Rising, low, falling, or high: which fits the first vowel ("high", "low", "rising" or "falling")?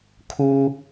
high